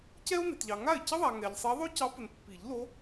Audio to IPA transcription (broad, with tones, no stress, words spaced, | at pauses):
cɛ˥o̯ne˨tʎɑ˨ ŋa˥˩e̯ cə˥ðˤa˨ ŋɛ˨ʎsˤɛ˧˥ ðˤo˥cɑ˧˥pə˨n pːi˨˩˦ʎlo˧˥